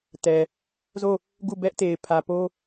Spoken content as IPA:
t ɛ˨ | z o˦˨ | ɡ u˦˨ b ɛ˦ ʔ t e˨ ɪ̯ pʰ ä˨ p o˦

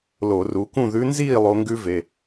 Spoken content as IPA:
l o˧˩˧ r u˩˥ k ũ˥˨ ð ʉ˧˥ n z iː˥˨ lˠ o˧˥ ŋ ɡ ʉ˥ v e˩˧˩

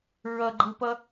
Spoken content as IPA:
ɹ ʌ ɡ͡ǃ ɯ p ʌ

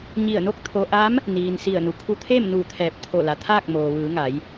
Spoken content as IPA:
ɲ i˧˩ ə̯ n o˥˨ k̚ t̪ʰ o˧ ʔ a˧˥ m | n iː˩ n s i˧˩ ə̯ n u˩ kʰ u˧ t̪ʰ eː˥˨ m n uː˧˩ t̪ʰ ɛː˧˩ p̚ t̪ʰ o˧˩ l a˩ t̪ʰ aː˥˨ k̚ m oː˩ ʋ ɯː˩˧ ŋ a˩˧ j

